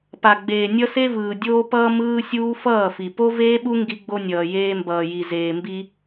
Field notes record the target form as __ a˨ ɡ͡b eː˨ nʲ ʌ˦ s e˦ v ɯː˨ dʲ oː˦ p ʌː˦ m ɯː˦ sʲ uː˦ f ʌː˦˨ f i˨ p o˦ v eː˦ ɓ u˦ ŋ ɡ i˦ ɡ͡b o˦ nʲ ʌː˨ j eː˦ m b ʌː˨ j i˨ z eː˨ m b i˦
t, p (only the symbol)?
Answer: p